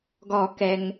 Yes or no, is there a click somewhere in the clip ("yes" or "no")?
no